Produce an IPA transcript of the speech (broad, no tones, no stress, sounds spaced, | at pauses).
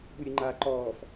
ɓ u ɾʲ ɯ ŋ͡ǃ aː ǃ ɔː f